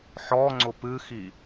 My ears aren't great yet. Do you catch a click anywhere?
yes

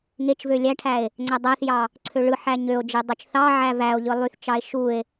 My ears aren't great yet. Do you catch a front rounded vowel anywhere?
yes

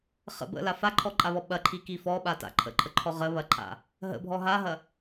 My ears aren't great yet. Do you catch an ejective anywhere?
yes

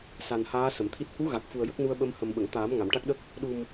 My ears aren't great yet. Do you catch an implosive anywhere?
yes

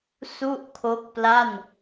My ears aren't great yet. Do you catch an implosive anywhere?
no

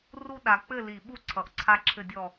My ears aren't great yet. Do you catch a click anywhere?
yes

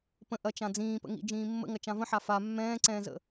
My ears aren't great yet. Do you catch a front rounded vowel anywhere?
no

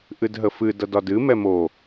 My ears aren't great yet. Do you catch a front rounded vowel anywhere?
no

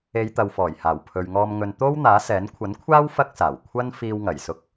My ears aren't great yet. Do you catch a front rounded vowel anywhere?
no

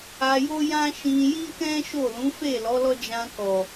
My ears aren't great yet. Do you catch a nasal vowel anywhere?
yes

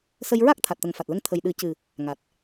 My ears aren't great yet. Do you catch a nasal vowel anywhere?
no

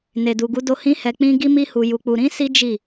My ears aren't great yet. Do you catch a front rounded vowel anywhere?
no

